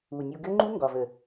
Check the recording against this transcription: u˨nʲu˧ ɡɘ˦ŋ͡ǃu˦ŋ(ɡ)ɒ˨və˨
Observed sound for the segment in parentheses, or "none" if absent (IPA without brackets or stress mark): ɡ